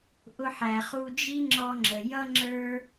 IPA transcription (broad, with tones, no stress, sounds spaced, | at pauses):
ʔ ʊ˧ ħ æ˩ χ u˧ d͡ʒ i˥ ŋ͡ǁ ɔ˧ ŋ͡ǁ ə˩ j ʌ˥ ŋ͡ǁ ə˞˥